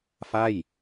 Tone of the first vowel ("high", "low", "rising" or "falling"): falling